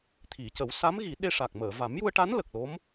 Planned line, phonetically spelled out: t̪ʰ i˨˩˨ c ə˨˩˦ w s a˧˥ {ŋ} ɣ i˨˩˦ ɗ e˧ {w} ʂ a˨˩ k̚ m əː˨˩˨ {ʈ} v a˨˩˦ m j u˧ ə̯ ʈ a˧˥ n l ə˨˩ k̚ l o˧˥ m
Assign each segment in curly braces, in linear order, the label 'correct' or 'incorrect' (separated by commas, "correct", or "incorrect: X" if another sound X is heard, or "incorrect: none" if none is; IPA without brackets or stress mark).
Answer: incorrect: m, incorrect: none, incorrect: none